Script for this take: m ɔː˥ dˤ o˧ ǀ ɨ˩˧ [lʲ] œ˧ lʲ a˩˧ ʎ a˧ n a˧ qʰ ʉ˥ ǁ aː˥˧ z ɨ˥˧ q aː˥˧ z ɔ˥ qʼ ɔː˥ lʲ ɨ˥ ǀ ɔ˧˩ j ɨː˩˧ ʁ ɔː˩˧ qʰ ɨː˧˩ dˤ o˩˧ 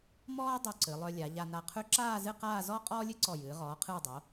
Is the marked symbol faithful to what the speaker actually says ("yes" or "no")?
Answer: no